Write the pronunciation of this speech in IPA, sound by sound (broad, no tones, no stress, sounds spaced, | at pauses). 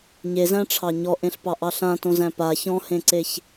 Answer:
ɲ e z æ̃ ʈ͡ʂʰ ɑ ɲ ɔ ʔ ẽ ɬ p ɑ ʔ ɑ ɬ ã t õ z æ̃ p a ç ɔ̃ h ẽ ǀ e ç